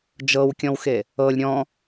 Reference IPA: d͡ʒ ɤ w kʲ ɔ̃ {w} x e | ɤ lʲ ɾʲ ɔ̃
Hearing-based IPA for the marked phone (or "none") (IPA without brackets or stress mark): w